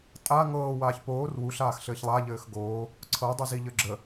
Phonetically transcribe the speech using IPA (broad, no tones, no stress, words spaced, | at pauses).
tʼa ŋɤːwaːç poːr wuɬaːxɬɘːç lˠaʎɘːx ɡoː | ǀʰɤdˤu ziʎɘɡ͡ǁə